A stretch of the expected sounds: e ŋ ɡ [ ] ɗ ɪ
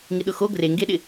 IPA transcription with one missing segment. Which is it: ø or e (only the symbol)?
e